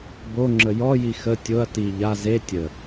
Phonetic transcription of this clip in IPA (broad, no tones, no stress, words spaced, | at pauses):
boŋ͡ǁə jɔji xə tʲoɐ̯ ti ʎa ze tʲə